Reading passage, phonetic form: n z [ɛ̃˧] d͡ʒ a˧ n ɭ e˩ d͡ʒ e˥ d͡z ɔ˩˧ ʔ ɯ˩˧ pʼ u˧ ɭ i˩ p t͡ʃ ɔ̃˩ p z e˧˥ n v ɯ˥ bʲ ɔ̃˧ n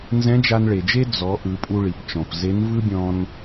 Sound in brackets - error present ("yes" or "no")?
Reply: yes